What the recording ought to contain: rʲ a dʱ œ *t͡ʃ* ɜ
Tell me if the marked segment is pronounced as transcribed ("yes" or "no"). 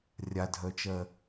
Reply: yes